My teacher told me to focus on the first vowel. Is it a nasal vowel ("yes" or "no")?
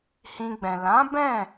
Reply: yes